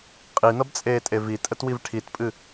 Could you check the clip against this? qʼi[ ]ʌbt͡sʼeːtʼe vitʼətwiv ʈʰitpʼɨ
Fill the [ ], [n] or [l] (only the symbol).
n